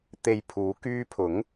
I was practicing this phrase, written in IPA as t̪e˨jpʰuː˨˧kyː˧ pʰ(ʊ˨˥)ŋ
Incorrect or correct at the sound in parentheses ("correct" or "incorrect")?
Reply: correct